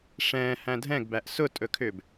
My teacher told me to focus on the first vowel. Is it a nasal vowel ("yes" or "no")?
yes